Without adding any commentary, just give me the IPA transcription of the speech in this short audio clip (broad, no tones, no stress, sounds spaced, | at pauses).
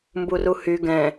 m b u r u h y ɡ ɛ̃